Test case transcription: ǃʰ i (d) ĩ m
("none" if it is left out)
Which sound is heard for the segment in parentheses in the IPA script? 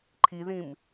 ð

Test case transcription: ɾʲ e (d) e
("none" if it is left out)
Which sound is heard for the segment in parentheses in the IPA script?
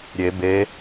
b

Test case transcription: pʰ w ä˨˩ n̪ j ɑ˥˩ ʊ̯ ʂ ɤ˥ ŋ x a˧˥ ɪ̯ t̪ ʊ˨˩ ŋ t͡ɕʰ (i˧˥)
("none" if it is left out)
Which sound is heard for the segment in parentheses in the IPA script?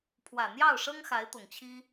i˥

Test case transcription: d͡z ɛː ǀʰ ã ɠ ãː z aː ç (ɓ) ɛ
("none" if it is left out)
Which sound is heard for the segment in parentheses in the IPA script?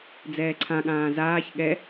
ɠ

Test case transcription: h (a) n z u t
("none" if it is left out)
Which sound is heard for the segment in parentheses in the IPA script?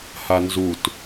a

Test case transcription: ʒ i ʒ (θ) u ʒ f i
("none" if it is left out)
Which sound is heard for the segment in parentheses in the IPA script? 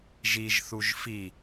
θ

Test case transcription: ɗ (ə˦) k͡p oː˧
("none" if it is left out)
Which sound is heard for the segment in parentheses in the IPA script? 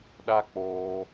a˦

